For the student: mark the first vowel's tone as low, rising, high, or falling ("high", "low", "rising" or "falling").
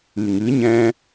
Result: low